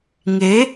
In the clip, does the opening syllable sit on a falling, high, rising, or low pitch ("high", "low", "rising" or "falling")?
rising